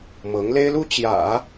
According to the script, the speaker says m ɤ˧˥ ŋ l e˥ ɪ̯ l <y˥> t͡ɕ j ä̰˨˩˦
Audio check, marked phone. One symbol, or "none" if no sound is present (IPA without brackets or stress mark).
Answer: u˥